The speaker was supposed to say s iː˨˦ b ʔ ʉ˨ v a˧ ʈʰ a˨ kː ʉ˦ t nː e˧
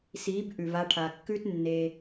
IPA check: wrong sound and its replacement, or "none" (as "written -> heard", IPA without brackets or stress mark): none